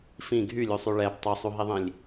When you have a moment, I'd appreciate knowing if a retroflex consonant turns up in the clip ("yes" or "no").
yes